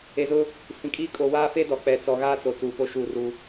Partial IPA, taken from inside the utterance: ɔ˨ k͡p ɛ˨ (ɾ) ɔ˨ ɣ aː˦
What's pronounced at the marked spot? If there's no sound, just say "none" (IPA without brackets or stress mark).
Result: t͡s